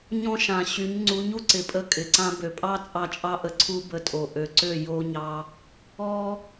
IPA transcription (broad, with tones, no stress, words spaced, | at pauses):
ɲɔ̃˦ʃã˨ɕy˨˦ɲ ŋ͡ǀu˨˦ɲ u˦ǀɪ˨ pʼə˧kʼɪ˨ǀã˧ bø˨pʼɑ˦t͡sʼɑ˧ t͡ʃʼɑ˧ʔə˨ǀʰu˧ bə˧tʼo˨ ʔø˨ ǀø˦˨ jo˧ɲɑ˧ | ɔ˦